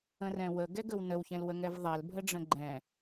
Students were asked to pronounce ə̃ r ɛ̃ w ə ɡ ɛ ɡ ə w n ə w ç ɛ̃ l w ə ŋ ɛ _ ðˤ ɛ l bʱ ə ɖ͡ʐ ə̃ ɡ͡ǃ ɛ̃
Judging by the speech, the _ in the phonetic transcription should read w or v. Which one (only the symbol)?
v